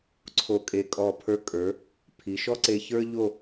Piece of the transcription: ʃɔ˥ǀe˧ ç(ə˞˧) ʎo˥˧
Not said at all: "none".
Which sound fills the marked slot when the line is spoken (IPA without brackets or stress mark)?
ə˞˥